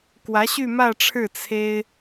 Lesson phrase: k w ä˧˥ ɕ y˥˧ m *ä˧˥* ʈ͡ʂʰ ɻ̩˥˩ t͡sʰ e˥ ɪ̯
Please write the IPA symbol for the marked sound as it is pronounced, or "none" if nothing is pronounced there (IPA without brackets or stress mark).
ä˥˧